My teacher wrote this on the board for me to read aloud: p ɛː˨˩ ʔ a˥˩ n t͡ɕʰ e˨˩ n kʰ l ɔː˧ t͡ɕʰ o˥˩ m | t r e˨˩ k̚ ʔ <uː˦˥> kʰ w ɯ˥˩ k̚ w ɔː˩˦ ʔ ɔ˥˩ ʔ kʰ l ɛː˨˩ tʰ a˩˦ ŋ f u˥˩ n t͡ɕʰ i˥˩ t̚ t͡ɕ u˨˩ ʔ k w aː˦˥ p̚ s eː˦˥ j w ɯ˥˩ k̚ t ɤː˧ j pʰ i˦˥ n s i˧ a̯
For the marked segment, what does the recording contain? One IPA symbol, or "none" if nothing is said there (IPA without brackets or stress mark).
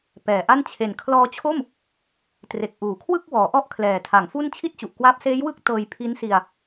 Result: uː˩˦